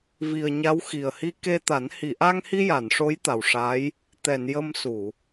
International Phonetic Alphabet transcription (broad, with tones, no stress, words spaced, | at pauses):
vi˨˩ə̯ ɲa˧˥wxi˨˩ə̯hi˧ ke˧t̪a˨˩˦n hi˨˩˨ʔa˧ŋhi˧ ja˨˩˨nʂo˧˥j t̪a˨˩wʂa˧˥j | t̪ɛ˨˩˨n jə˧m su˨˩˨